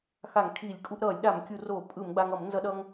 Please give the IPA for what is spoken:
x a˧˩˧ ŋ kʰ iː˧˩˧ lʲ kʼ u˧ ʔ ɾ ʌː˧˩˧ lʲ ɗ a˧˩˧ m kʲ u˧˩˧ r oː˧˩˧ pʼ ɯ˧˩˧ m ɡ͡b a˧ ŋ ʌ˧˩˧ m n z ʌ˧ ɗ ʌː˧ ŋ

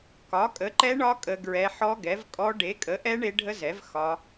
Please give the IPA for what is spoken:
k ɒ˨˥ kʼ ə˨˥ ǃ ɛ˦˥ ɳ ɒ˦˥ kʼ ə˦˥ ɡ ɹ ɛ˦˥ ħ ɔ˦˥ ɡ ɛ˨˥ v kʼ ɔ˦˥ ɖ e˨˥ kʼ ə˨˥ ʔ ɛ˦˥ ɳ e˦˥ ɖʱ ə˦˥ z ɛ˨˥ v x ɒ˦˥

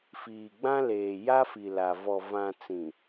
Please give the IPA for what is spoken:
f iː˨ ɡ͡b ã˦ l eː˨ j a˦ f i˨ l a˨ v ɔ˨ v ã˨ t͡s ĩ˨

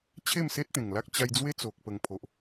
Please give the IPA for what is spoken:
t͡ɕʰ e˥˧ m s e˦ t̚ t̪ ẽ˨˩ ŋ l a˦ k̚ t͡ɕ a˧ j d͡z w e˦ t͡s o˨ k̚ p ə˨˩ ŋ pʰ o˨ ʔ

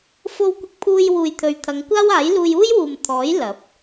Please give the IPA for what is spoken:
f o˧ w kʷ ɪ˧ k̚ pʰ uː˧ j w uː˨ j t̪ʰ ɵ˨˧ ɥ t̪ʰ ɐ˨˧ ŋ kʷ aː˥ w aː˨˥ j l uː˧ j uː˥ j w uː˨ m t̪ʰ ɔː˨˥ j l ɐ˨˥ p̚

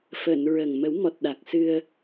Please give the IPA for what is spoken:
f əː˨˩˨ n ɹ ə˨˩ ŋ m ə˨˩˦ w m ɔ˨˩ t̚ ɗ a˨˩ k̚ s ɨ˧ ə̯

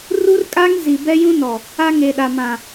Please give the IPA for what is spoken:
r u˦ r kʼ a˦ ŋ z i˨ b ɛ˦ j ũ˦ n ɔ˨ | a˦ ŋ e˨ ɗ a˨ m ã˨

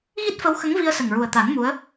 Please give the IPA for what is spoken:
ɣ i˦˥ t̚ f ə˧˥ w x ə˧˥ ŋ v i˧ ə̯ s ə˨˩ ŋ ɹ u˨˩ ə̯ t̪ a˨˩˦ n m u˧˥ ə̯

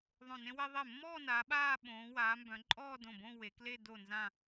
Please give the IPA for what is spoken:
ðˤ õ˧˩ n ẽ˥ w e˥ ðˤ e˧˩ mː ɔː˥˧ n a˩˧ ɓ aː˥˧ ɓ õː˩˧ w aː˩˧ m b œ̃˩˧ ǃʼ ɔː˥˧ d õ˧˩ b õ˥˧ w e˩˧ k l e˥˧ d o˧˩ n z ã˧˩

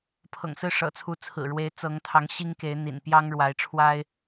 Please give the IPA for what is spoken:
pʰ ɤ̰˨˩ ŋ s ɹ̩˥˨ ʂ ɤ̰˨˩ t͡sʰ u˨˦ t͡sʰ ɹ̩˨˩ ɻ w e˨˦ ɪ̯ t͡s ɤ˨˦ ŋ t̪ʰ ɑ˨˦ ŋ ɕ i˦ ŋ k e˨˦ ɪ̯ n̪ ḭ˨˩ n p j ɑ˦ ŋ ɻ w a˨˦ ɪ̯ ʈ͡ʂʰ w a˦ ɪ̯

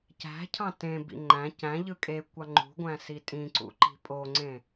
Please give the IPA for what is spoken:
c æ̤ cʰ ɑ̃ t ẽ b ḭ ŋ͡ǃ æ̃ c æ̃ ʎ ɯ kʼ e kʷ ɑ ŋ͡ǃ ṳ ɡʷ æ̃ s i tʼ ĩ ǀ ṵ ǃ i̤ pʼ o ŋ͡ǀ ẽ

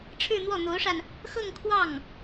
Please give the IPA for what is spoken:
ʈ͡ʂʰ ɻ̩˥˧ n̪ w ɔ˥˩ n̪ o˧˥ ʊ̯ ʂ a˧ n | x ɤ˥˧ ŋ kʰ w ɑ˥˩ ŋ

